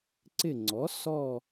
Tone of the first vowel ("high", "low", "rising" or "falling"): falling